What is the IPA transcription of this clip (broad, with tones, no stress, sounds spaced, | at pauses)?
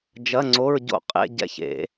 d͡ʒ ɐ˧˥˧ ŋ͡ǀ o˧˥˧ ɹ ɟ o̰˦˨ qʼ ḛ˧˥˧ ɟ ɛ̰˦˨ ç ḛ˧˩˧